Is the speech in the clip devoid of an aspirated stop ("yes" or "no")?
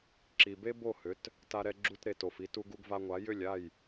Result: yes